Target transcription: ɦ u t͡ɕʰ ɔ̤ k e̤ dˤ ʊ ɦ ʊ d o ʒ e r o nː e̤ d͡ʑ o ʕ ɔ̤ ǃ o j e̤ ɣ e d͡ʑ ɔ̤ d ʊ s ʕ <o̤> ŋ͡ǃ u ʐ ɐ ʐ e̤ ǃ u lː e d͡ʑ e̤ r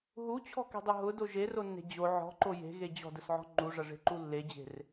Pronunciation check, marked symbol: incorrect: ɔ̤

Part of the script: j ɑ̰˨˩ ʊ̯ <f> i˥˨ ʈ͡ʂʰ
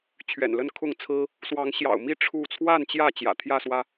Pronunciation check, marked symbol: incorrect: m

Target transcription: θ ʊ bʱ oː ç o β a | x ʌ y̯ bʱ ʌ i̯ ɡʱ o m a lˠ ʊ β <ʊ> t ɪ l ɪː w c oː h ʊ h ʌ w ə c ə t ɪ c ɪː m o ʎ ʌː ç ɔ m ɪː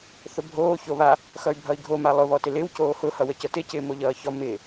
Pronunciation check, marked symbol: incorrect: ɔ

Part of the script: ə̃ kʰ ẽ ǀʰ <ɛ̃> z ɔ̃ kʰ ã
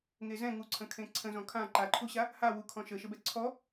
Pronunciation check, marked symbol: incorrect: ə̃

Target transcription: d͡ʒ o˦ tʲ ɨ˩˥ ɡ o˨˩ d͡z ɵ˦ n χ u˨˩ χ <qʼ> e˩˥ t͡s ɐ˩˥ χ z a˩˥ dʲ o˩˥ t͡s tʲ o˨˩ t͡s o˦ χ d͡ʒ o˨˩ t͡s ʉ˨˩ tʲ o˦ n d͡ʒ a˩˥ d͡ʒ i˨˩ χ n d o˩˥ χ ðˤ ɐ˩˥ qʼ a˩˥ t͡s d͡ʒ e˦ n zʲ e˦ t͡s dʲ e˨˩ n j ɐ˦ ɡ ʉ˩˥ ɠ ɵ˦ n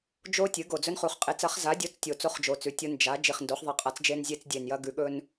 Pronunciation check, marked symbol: correct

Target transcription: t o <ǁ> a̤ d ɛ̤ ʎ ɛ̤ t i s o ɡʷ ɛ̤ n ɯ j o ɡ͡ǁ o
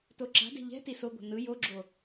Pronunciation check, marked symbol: correct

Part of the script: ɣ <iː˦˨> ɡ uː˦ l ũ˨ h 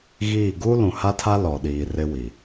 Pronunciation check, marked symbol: correct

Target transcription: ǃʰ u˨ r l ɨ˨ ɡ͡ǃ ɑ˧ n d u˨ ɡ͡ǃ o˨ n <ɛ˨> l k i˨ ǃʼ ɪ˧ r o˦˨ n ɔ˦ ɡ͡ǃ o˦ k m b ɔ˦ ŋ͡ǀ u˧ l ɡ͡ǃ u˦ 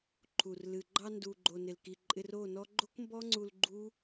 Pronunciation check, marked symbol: incorrect: ɪ˨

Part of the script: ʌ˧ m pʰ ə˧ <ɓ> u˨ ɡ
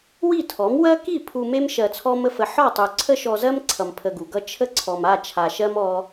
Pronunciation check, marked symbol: incorrect: ɡ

